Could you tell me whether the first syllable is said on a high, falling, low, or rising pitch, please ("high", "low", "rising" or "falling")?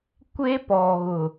high